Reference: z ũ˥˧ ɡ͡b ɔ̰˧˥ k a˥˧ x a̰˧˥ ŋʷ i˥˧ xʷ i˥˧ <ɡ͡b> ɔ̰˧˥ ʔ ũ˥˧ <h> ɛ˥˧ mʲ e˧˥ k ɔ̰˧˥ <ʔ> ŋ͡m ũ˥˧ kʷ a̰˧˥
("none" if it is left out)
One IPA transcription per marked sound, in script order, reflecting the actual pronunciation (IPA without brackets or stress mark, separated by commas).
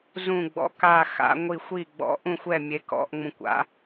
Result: ɡ͡b, xʷ, ʔ